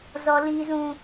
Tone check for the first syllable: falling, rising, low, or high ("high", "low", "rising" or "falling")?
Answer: high